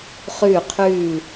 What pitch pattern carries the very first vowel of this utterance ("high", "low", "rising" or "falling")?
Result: falling